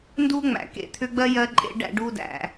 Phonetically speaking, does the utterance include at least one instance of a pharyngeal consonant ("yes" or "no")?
no